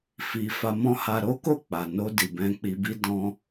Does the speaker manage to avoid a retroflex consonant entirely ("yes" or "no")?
yes